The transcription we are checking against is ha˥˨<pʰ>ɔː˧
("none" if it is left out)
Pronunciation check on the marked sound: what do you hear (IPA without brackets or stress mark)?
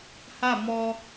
m